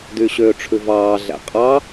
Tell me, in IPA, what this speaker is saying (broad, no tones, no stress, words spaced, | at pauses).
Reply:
dyɕøːʈ͡ʂʰʉvɑː ɮæ̰qʼɑ